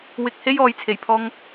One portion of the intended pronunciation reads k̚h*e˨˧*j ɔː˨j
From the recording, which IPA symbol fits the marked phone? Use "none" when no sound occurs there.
e˥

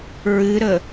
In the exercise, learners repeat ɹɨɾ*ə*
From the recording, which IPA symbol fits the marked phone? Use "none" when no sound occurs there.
ə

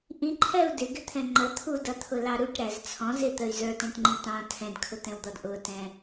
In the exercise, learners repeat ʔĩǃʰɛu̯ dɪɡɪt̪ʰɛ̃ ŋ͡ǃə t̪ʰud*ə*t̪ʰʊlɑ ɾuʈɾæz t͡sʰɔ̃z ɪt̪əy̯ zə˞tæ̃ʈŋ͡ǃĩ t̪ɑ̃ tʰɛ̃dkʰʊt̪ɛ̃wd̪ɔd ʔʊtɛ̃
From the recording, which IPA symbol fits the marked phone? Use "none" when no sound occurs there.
ʌ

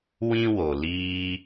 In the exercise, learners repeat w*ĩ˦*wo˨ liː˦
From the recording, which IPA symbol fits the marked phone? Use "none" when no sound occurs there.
ĩ˦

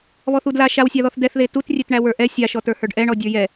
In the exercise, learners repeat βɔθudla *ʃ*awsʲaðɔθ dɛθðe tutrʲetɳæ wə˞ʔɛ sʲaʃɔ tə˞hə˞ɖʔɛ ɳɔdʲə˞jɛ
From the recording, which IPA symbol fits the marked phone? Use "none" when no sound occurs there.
ʃ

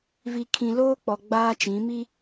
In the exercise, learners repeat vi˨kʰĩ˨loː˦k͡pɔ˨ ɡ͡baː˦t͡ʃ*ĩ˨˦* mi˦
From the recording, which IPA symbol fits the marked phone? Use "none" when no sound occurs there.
ĩ˨˦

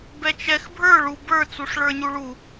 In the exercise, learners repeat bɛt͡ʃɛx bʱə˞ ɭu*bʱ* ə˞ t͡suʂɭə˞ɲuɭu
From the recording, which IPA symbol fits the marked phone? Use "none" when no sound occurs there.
b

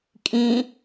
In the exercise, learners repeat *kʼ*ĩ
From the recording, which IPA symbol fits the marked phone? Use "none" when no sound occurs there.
kʼ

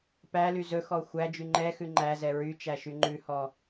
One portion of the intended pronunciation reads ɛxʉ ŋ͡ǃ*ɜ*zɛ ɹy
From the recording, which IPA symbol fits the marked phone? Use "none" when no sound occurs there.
æ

